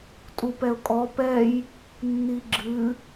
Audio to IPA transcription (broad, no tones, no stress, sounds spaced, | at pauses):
tʼ u p ɛ ʊ̯ kʼ ɔ p ɛ j | nː i ɡ͡ǁ ɨ